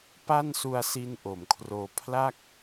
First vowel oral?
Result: yes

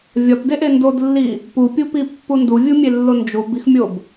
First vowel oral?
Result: yes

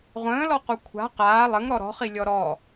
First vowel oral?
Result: no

